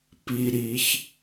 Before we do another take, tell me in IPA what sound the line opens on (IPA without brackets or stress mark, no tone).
p